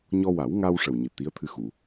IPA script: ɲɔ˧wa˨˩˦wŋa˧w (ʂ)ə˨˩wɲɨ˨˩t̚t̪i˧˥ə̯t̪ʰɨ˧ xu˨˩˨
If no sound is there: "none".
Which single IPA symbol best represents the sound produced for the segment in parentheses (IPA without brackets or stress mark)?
ʂ